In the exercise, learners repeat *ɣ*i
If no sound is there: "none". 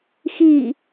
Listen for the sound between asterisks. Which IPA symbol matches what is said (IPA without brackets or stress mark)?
x